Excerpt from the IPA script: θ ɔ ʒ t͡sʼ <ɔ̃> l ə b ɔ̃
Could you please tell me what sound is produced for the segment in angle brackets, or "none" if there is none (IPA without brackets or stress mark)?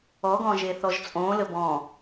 õ